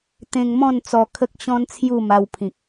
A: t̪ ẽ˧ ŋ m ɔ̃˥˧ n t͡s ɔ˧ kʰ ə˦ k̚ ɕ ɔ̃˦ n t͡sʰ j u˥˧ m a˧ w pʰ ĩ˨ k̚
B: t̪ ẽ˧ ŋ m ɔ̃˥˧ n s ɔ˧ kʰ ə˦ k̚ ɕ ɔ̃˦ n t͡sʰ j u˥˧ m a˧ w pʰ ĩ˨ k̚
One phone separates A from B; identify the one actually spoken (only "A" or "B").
A